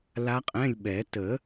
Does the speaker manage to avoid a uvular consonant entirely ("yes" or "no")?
no